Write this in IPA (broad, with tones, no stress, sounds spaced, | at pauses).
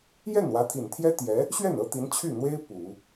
j ɛ˥˩ n w ä˧˥ t̪ʰ i˨˩ n t̪ʰ j ɛ˥ t̪ j ɛ˧˥ | ɕ ɥ ɛ˥˩ n ɤ˥ t̪ i˧˥ n t͡ɕʰ y˥˩ n̪ w e˥ ɪ̯ p u˨˩˦